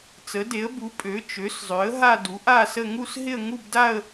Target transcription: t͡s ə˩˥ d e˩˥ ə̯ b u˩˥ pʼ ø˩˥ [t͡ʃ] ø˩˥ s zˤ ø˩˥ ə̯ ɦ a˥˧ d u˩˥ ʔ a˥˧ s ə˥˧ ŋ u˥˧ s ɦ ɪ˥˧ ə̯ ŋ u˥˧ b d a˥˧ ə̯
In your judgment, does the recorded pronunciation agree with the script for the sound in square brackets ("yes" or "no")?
yes